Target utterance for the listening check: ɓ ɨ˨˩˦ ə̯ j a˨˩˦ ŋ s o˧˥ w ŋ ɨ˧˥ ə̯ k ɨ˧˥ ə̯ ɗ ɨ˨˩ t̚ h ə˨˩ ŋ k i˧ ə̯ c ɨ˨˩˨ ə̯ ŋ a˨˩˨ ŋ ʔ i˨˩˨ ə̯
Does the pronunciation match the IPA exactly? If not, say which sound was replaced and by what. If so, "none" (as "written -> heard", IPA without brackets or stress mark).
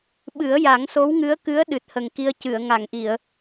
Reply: none